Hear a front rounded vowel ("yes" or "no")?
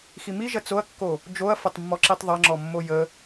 no